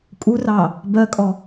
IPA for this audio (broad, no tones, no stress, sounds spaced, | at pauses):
kʼ u r ɑ | b ɜ kʼ ɔ